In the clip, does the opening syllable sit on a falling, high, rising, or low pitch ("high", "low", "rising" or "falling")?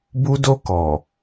high